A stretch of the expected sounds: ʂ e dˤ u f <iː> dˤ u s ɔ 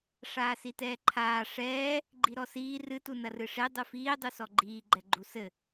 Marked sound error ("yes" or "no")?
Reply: no